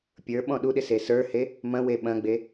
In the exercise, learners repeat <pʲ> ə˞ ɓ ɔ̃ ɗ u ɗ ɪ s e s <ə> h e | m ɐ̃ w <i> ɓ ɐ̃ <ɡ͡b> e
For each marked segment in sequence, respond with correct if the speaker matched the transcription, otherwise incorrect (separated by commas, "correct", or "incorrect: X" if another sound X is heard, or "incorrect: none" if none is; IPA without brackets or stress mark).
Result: correct, incorrect: ə˞, incorrect: e, correct